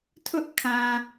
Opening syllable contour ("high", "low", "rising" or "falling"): high